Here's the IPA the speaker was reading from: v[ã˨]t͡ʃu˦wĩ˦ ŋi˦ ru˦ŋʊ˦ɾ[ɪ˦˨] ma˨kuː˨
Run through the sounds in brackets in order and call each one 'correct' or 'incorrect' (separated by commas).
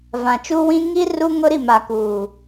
correct, incorrect